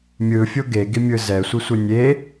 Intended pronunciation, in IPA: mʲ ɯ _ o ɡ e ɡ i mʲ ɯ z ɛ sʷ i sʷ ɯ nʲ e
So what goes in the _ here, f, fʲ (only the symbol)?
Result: fʲ